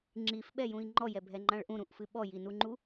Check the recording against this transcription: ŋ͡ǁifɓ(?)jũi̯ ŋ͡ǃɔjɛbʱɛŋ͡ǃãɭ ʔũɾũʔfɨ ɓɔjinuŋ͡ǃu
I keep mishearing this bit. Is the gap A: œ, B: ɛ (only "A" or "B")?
B